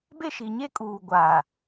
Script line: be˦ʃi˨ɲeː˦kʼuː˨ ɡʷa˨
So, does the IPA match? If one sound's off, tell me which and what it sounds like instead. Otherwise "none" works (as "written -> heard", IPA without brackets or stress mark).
eː˦ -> e˦